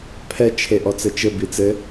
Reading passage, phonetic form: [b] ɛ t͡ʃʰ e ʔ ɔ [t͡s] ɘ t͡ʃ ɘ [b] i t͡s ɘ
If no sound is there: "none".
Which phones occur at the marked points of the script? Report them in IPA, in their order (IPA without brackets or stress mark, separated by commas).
pʰ, t͡s, b